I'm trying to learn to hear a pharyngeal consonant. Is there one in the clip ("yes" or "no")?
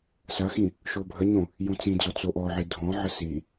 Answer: yes